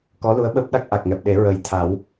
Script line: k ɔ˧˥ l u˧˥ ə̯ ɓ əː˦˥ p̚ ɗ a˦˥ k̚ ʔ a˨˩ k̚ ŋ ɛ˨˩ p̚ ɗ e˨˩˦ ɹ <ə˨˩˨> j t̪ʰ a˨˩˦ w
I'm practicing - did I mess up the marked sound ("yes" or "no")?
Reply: yes